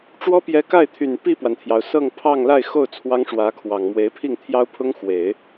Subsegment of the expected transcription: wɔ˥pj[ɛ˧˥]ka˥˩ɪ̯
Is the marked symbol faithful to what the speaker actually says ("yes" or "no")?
yes